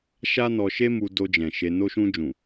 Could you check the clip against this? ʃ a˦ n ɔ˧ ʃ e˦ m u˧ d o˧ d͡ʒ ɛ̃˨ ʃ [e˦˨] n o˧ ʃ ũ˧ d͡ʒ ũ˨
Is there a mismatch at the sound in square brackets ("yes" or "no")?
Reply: yes